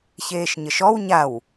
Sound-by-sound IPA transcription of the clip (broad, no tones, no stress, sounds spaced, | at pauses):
ç eː ʃ ɲ ə ʃ ɔ w ɲ a w